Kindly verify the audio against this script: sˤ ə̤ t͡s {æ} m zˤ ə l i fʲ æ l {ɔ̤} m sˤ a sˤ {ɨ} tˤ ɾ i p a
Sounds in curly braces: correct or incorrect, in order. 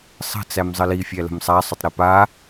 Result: correct, incorrect, incorrect

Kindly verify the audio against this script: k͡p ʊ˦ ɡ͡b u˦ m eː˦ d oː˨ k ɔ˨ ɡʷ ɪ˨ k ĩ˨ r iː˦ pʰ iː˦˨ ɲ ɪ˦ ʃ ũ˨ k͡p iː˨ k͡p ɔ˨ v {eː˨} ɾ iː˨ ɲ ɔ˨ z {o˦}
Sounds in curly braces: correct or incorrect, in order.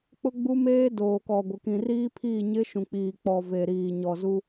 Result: incorrect, incorrect

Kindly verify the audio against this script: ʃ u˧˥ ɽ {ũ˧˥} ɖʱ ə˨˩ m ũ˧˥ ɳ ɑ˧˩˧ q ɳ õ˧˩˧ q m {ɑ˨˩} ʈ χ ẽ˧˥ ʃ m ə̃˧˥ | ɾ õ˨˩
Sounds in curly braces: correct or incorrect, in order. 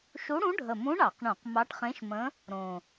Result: correct, incorrect

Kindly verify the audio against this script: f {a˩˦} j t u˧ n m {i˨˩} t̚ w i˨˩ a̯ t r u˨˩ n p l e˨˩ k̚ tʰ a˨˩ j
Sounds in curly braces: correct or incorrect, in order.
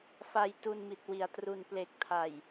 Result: incorrect, correct

